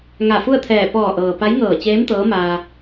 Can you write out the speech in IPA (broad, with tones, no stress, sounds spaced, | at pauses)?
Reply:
ŋ a˧˩ f u˥˨ ə̯ t̪ʰ ɛː˧˩ p ɔː˧˩ ʔ ɤː˩ p a˧˥ j ŋ ɤː˧˩ t͡ɕ eː˧˥ m t̪ ɤː˧˥ m aː˧